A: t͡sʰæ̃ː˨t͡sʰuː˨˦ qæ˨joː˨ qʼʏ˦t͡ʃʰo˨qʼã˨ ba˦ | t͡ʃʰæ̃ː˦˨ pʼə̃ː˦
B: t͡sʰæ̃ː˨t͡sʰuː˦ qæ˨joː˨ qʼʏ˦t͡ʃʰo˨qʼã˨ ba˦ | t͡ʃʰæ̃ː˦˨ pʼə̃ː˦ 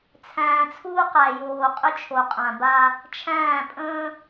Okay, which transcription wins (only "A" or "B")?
B